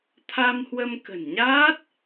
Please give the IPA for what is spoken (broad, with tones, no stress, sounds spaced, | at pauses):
t̪ʰ a˧ m h w ə˧ m k ə̤˨˩ n ɲ aː˦˥ t̚